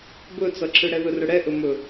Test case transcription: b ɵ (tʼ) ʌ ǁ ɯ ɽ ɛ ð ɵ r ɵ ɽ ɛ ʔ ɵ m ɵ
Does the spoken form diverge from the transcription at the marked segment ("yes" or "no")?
yes